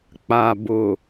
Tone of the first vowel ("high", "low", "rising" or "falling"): low